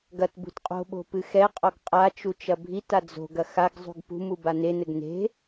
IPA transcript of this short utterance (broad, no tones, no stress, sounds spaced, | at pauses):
ɡ ɐ t b ṳ t qʼ o̤ ɓ o̤ p ɨ x ɛ qʼ ɔ ɡ qʼ a t͡ʃ u t͡ʃ ɐ bʱ i t a d͡z o̤ ɡ ɐ x a ɡ zˤ ṳ ɡ p ṳ m u b a n e n ɘ ɡ n e̤